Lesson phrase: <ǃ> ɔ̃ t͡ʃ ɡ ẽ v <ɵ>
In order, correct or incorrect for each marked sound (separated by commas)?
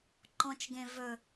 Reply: correct, correct